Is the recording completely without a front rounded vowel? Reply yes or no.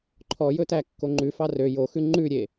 no